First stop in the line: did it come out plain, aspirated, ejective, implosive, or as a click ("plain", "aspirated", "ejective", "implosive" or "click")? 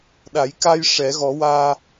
implosive